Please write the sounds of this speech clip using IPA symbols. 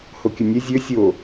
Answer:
h o kʲ ɵ nʲ ɛ zʲ ɵ sʲ o

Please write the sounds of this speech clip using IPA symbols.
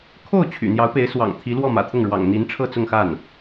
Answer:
kʰ o˥˩ ʊ̯ t͡ɕʰ y̰˨˩ n̪ j ɑ˧˥ ʊ̯ p e˧˥ ɪ̯ s w ɑ̰˨˩ ŋ t̪ʰ i˧˥ l w ɔ˥˩ m ä̰˨˩ t̪ʰ ʊ˥˩ ŋ ɻ w ɑ̰˨˩ ŋ n̪ i˧˥ n ʈ͡ʂʰ ɤ˥˧ t͡s ʊ˥˧ ŋ x a˥˩ n

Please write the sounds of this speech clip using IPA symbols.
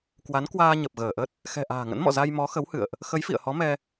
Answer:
k w a˨˦ n k w aː˧ ɲ ə˨˩ p̚ ɣ əː˧˩ ʔ ə˦˥ t̚ | x ɛ̤˨˩ ʔ a̤ː˨˩ ŋ ə̰˧˥ n m ɔ̰˧˨ z a˧ j m ɔ˨˦ x ə˨˦ w h ɨ̰˧˨ ə̯ ʔ | x ə˨˦ j f ḭ˧˨ ə̯ h ɔ˨˦ m ɛ˧

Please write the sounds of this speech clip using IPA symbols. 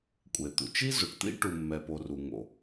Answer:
kʷʼ e˩ t̪ ṵ˩ t͡ʃ i˥ z o˩ ʈ t̪ ḭ˥ ʈ u˩ mː ɛ˩ p o˩ r u˩ ŋ o̰˩

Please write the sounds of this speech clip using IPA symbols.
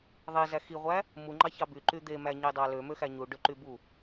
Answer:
ðˤ i z æ x i ʁʷ æ | m u ŋ͡ǃ ɑ ç ɑ b y ǃ y d̪ e m æ ɲ i dˤ ɑ l ø m ø x æ ɲ u ɖ ø ǃ y b u

